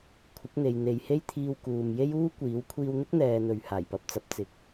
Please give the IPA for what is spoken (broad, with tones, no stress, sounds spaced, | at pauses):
kʷʰ ɪ˨˥ k̚ n̪ e˨ j n̪ e˨˧ j h e˥ j t̪ʰ iː˧ w k uː˨ m j e˥ j uː˥ kʷ iː˨˥ w kʷʰ iː˧ w n̪ ɪ˥ k̚ n̪ ɛː˨ n̪ ɵ˨˧ ɥ h aː˨˩ j p ɐ˧ p̚ t͡s ɐ˨ p̚ t͡s ɪ˨˥ k̚